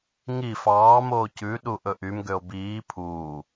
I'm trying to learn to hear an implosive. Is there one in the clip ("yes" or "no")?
yes